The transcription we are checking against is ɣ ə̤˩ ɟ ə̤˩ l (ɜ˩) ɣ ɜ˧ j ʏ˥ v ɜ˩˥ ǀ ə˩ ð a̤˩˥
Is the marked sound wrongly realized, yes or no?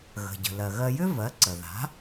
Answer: no